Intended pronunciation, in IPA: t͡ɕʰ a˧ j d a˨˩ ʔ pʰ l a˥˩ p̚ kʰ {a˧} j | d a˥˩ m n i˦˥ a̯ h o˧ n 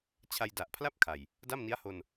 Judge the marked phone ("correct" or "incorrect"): incorrect